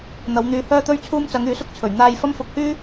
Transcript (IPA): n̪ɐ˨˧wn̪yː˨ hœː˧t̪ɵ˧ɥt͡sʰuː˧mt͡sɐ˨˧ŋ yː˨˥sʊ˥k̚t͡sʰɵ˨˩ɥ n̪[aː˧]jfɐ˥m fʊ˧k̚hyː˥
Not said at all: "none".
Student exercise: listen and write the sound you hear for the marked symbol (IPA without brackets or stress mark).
aː˧